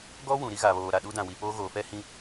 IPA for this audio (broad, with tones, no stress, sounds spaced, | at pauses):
ɡ ɔ˦ w ũ˨ ɾ i˦ ɣ a˨ β oː˨ ɾ a˨ ɗ u˦ d ã˨ w i˨ p oː˦ ɣ oː˨ f ɛ˦ h ĩ˦